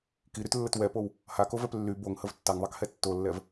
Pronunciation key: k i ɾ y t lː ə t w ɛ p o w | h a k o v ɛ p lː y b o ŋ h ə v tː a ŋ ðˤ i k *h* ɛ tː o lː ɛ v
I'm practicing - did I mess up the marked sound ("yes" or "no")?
no